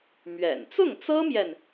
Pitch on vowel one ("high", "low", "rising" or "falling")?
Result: low